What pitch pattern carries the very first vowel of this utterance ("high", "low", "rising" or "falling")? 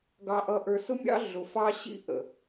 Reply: low